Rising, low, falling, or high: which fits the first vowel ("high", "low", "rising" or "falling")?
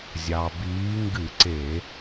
low